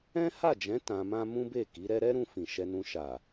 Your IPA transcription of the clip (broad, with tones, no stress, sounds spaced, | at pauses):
ɛ̃˦ h a˦˨ d͡ʒ ɛ̃˨˦ t ã˧ m ã˦ m ũ˦ b e˦˨ k i˨˦ ɾ ɛ˦ ɾ ɛ˦ ɾ ũ˧ f ĩ˨ ʃ ɛ˧ n ũ˧ ʃ a˨